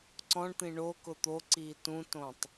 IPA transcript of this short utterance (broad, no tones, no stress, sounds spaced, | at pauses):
ǀ ɔ̃ ɳ t̪ ĩ ɳ o k ʊ t̪ o ǀ iː t ũ t õ tˤ